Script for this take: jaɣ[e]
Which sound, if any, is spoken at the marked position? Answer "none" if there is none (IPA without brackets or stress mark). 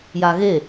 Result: e